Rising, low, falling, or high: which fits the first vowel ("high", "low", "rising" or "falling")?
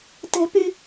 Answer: high